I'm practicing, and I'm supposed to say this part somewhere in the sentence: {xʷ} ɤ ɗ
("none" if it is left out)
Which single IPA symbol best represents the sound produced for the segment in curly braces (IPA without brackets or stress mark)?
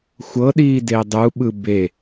xʷ